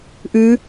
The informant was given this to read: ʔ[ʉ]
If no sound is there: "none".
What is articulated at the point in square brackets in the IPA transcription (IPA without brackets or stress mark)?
ʉ